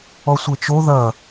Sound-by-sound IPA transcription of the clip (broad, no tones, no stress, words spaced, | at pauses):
ɔsʷet͡ʃo ðɐ